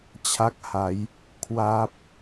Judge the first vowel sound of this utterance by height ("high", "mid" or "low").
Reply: low